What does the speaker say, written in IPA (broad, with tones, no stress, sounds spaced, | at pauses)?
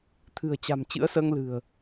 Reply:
t̪ʰ ɨ̤˨˩ ə̯ t͡ɕ a̤˨˩ m t͡ɕ ɨ̰˧˥ ə̯ s əː˧ ŋ l ɨ̤˨˩ ə̯